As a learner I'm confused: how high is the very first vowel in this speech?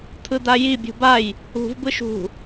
high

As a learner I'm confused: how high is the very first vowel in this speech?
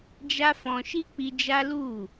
low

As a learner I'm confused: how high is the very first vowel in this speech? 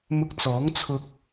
high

